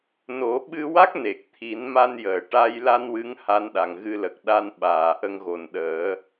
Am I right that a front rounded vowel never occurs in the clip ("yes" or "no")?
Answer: yes